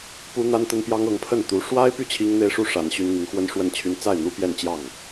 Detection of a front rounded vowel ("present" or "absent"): present